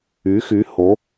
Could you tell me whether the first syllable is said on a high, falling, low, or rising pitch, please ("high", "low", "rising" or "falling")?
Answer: rising